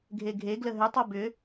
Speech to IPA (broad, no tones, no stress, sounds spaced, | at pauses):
ɡʱ e ɡʱ e ɡ l ə ɦ ʏ tˤ o b ʏ